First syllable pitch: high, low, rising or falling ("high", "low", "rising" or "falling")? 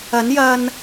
rising